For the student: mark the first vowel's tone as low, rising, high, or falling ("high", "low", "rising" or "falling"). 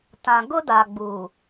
low